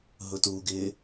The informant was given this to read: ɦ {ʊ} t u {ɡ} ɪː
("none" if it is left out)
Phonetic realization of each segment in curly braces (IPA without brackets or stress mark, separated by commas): ʊ, ɡ